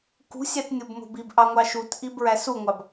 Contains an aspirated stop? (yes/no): no